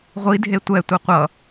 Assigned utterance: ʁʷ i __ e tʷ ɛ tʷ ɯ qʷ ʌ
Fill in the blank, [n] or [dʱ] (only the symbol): dʱ